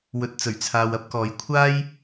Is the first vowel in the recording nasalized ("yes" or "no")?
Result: no